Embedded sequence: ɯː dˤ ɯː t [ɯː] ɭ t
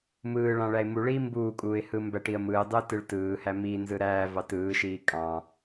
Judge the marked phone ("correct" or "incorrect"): incorrect